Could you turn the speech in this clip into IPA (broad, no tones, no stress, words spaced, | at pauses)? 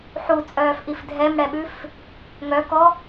ħut͡sʼœːfʔif dʱɛmɽɛɓʉf | ŋœkɔ